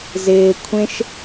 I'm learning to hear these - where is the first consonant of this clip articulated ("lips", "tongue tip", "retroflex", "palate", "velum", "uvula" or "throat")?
tongue tip